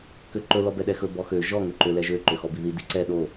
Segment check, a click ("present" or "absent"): present